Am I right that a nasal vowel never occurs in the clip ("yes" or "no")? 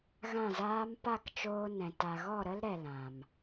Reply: no